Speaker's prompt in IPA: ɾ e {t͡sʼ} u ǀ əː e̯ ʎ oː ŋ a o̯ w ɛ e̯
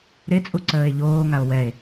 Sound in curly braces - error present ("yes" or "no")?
no